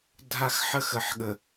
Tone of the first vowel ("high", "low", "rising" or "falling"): high